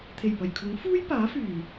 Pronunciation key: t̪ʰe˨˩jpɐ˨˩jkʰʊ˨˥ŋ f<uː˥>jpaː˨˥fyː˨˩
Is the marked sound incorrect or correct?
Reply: correct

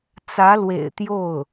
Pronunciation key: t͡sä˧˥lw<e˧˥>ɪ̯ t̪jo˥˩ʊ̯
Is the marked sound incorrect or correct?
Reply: incorrect: ḛ˨˩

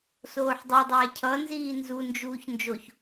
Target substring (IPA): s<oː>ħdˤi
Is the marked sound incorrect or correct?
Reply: correct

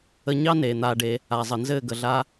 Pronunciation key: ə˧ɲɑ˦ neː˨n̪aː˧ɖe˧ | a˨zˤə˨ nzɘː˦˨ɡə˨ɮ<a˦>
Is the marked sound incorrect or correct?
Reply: correct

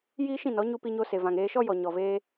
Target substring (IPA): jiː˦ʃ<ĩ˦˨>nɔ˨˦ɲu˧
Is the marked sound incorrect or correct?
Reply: correct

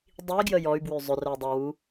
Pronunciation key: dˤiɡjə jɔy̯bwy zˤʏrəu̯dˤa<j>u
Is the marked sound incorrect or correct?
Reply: incorrect: w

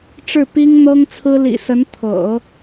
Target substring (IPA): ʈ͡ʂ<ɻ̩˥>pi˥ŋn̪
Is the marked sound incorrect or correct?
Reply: incorrect: ɻ̩˥˩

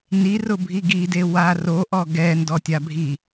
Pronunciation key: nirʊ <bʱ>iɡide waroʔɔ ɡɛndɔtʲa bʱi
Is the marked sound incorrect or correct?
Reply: correct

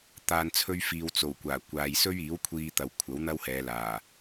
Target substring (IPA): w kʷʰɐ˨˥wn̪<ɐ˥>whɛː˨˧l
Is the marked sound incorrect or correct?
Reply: correct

